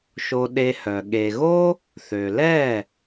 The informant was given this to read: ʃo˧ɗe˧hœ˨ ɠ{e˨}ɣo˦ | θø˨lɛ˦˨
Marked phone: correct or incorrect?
correct